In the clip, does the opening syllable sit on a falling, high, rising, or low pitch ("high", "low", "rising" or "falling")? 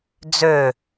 falling